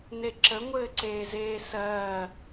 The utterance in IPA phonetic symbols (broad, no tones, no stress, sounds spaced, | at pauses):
n e ǁ ə ŋʷ ɘː ǀ eː z eː s ɜː